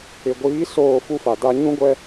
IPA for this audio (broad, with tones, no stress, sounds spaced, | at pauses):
ɪ˨ ɡʷ iː˨˦ s oː˦˨ f u˦ f a˨ d a˦ ɲ ũ˦ ɡʷ ɛ˦